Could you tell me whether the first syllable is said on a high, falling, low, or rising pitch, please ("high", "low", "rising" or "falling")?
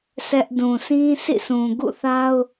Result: high